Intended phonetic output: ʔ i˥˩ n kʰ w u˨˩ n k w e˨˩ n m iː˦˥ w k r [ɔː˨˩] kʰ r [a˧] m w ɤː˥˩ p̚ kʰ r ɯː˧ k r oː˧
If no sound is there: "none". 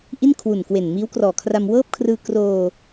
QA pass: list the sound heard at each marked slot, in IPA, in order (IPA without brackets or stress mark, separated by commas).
ɔː˨˩, a˧